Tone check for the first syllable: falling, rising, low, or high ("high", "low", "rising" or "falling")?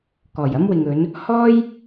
low